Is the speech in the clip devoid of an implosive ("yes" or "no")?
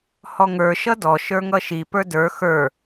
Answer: yes